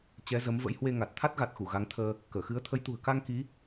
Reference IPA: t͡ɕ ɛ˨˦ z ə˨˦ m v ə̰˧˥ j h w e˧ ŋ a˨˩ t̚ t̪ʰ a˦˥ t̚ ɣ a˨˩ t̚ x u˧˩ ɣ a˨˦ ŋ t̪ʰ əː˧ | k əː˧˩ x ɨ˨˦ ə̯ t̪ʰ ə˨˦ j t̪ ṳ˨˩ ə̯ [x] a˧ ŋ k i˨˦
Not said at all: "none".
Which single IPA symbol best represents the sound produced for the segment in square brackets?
k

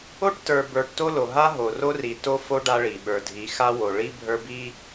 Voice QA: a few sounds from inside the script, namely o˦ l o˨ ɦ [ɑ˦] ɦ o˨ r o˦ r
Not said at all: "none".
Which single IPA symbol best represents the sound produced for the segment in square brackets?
a˦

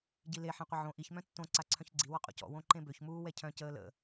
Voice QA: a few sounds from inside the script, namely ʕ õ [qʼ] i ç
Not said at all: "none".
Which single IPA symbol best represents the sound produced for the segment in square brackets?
ʔ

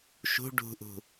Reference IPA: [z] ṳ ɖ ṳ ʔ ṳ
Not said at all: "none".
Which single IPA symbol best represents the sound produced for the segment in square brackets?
ʃ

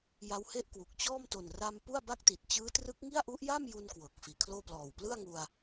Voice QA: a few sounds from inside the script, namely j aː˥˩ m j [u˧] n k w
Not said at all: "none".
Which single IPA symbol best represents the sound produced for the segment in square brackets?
u˧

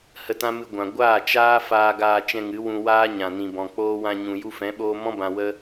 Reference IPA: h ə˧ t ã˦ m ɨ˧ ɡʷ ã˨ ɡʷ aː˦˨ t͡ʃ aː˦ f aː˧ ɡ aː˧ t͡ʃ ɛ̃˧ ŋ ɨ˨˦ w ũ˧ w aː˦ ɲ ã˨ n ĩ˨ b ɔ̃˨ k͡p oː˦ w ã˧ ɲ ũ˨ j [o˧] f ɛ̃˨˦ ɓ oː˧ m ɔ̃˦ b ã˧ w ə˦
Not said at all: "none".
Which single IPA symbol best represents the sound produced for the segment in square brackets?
u˧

